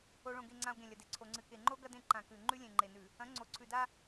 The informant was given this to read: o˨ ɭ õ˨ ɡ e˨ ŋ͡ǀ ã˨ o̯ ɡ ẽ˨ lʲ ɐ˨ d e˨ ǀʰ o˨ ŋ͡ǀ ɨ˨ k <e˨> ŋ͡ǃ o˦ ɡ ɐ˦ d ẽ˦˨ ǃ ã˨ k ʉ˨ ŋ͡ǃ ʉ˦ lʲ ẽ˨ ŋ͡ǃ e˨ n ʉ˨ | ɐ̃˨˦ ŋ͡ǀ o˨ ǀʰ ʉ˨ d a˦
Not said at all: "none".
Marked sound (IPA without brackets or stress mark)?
e˨